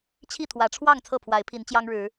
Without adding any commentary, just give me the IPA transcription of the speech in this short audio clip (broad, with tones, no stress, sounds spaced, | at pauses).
t͡ɕʰ i˥˨ t̪ʰ w ä˨˦ ʈ͡ʂʰ w ɑ˥˨ ŋ t͡sʰ ɤ˥˨ pʰ w a˨˦ ɪ̯ pʰ i˨˦ n t͡ɕ j ɑ˦ ŋ ɻ ɻ̩˨˦